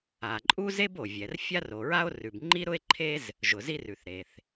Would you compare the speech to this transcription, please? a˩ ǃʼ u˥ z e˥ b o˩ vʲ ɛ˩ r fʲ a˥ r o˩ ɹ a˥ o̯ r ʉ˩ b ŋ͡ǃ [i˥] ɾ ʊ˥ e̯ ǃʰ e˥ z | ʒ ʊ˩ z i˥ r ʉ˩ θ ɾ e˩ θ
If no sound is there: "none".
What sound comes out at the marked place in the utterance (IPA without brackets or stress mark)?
i˥